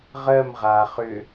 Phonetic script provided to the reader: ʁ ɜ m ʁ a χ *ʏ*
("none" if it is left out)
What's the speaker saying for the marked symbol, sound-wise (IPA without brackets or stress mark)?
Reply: ʏ